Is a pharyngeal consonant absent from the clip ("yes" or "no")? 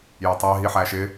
no